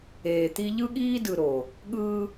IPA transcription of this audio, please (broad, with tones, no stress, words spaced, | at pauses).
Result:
eː˨t̪i˦ ʎɯ˦ɠiː˦dɯ˨ ɾo˨ | ɠɯː˦